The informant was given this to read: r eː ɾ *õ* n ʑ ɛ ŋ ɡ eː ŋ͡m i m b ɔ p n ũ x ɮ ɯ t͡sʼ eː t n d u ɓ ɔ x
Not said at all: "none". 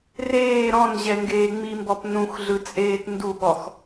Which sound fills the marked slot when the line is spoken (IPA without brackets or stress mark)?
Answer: ɔ̃